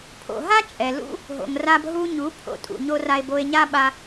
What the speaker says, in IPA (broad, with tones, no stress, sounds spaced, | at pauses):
pʰ o̰˨ ɦ a˦ t͡ʃʼ ɛ˨ l ṵ˦ | ɦ o̰˨ ŋ r a˧ b ɦ u˧ ɲ u˨˦ pʰ o̰˧ tʼ ṵ˨ ɲ o˦ r a˧ e̯ b o˧ e̯ ɲ a˦ ɓ a˧